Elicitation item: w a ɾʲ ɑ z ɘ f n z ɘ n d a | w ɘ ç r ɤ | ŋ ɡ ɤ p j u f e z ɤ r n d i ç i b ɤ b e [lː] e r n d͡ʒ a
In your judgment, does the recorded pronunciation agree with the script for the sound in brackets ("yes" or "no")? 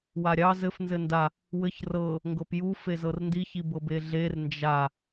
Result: no